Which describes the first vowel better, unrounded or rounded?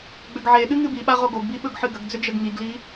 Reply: rounded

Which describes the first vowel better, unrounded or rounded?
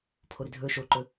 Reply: rounded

